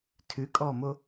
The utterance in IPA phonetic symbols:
tʰ ʉ kʼ ɔː m o

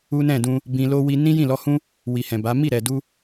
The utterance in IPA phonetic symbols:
u˦ n ɛ̃˦˨ d ũ˧ | b ĩ˧ l o˦ w i˧ n ĩ˦ j ĩ˦˨ l ɔ˧ h ũ˦ | w i˨ h ɛ̃˨ b a˨˦ m i˦˨ ɾ ɛ˨ d u˧

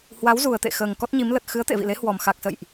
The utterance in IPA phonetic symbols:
h w a˨˦ w z u˨˩ ə̯ t̪ ḛ˧˨ x əː˨˩ ŋ k ɔ˦˥ t̚ ɲ i˨˦ m l ə˨˩ t̚ x ɨ˨˦ ə̯ t̪ ḛ˧˨ v ḭ˧˨ l e˨˦ h w ɔ˨˩ m x a˨˩ k̚ s ə̰˧˨ j ʔ

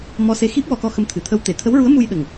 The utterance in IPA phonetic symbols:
m ɔ˧ s e˧ x i˦˥ p̚ w ɔ˧ k ɔ˧ x ə˧ m t̪ʰ ɨ˨˩ t̪ʰ ə˧ w t̪ e˨˩˨ t̪ʰ ə˧˥ w ɹ u˧˥ ə̯ m u˧ j ɗ ə˨˩ ŋ

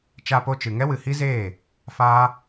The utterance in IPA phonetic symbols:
t͡ʃ a˧ p o˧ t͡ʃ ɨ˨ ŋ ɛ˦ w ɨ˨ h i˦ z eː˦˨ | f aː˦

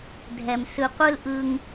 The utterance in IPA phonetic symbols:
dʱ ɛ˨ m s ɯ˨ qʷ ɯ˦ l ʔ ɯ˧ ŋ

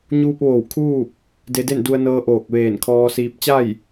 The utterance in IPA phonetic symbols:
ɲ uː˧ p̚ ʋ oː˧˩ w kʰ uː˥˨ p̚ | d e˧ d e˥˨ n d u˧ ə̯ n ɤː˧ ʔ oː˧˩ k̚ ʋ eː˧˩ n kʰ ɔː˧ s iː˧ p̚ t͡ɕ a˥˨ j

